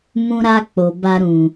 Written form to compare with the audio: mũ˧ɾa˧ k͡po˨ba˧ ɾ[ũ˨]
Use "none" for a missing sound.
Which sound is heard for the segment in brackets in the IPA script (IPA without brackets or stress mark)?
ũ˨